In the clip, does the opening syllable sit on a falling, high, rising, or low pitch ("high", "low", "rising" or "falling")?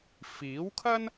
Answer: rising